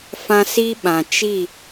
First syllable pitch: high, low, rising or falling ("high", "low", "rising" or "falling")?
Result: high